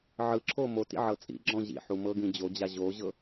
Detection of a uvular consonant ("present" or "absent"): absent